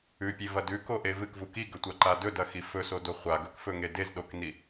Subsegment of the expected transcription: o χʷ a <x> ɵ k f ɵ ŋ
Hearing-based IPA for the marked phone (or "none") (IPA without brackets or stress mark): ɡ